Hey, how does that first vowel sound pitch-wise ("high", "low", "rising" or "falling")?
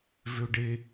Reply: high